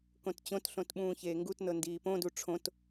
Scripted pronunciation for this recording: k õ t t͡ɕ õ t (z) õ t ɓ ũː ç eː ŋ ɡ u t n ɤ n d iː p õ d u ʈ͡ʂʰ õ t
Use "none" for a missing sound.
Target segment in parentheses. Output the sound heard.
ɬ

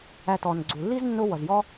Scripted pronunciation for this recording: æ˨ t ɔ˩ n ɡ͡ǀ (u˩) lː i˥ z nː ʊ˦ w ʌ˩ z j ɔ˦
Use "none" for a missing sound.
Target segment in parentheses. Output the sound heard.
u˩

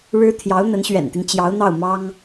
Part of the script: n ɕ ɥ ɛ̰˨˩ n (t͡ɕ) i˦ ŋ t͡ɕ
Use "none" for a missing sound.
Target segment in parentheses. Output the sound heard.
t̪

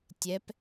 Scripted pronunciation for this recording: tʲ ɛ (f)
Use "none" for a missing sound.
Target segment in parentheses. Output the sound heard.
p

